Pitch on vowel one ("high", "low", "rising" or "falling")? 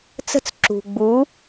falling